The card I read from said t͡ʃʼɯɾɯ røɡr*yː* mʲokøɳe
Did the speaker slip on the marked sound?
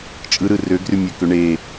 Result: yes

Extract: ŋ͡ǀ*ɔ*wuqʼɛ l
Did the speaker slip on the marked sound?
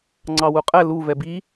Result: yes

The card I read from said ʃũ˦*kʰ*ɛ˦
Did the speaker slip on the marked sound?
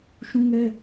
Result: yes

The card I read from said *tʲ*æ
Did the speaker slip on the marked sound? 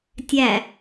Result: no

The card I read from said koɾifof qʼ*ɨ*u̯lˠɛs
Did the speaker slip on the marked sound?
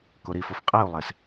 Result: yes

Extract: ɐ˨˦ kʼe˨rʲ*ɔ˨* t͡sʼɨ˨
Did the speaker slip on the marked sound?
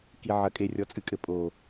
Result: no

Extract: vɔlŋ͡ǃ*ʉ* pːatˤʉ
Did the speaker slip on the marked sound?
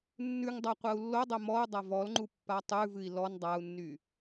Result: yes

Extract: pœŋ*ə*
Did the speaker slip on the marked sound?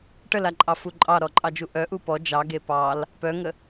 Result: no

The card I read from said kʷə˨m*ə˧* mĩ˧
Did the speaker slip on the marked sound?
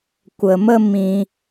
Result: no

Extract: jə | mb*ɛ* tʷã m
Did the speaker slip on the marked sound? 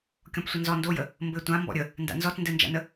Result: yes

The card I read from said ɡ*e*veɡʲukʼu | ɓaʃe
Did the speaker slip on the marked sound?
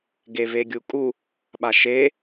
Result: no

